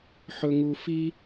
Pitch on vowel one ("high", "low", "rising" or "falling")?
low